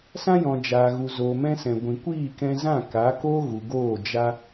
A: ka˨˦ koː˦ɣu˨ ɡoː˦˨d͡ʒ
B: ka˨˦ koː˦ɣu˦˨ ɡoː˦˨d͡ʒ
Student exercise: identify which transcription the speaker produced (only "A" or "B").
A